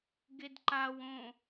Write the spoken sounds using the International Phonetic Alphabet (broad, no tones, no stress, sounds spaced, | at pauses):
ɡ e d ǃ a w õ